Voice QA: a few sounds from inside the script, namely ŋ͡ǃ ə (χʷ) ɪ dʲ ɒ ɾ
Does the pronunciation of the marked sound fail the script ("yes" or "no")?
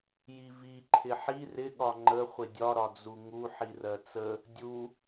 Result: no